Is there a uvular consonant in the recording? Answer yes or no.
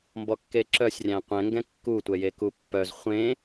yes